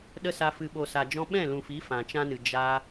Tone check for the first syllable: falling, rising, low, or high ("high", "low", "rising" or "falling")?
high